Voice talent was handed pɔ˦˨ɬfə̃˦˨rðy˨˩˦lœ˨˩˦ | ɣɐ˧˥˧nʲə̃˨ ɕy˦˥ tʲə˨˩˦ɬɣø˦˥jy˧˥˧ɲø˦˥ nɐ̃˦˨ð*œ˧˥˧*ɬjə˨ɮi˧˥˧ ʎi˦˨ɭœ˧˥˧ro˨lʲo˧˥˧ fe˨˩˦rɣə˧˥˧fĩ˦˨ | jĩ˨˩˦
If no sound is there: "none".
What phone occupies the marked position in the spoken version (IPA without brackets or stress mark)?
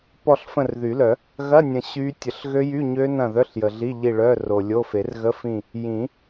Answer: œ˧˥˧